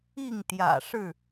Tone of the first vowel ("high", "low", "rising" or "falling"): falling